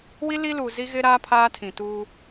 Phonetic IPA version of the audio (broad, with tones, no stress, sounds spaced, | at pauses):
w i˦ l i˦ l uː˨ z i˦ ɣ ɪ˦ ɾ aː˦ pʰ aː˦ tʰ ĩ˨ t uː˦